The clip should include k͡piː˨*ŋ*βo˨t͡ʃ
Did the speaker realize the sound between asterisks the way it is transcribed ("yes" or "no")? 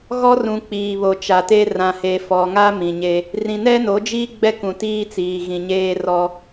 no